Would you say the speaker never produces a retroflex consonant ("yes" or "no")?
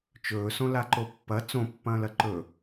yes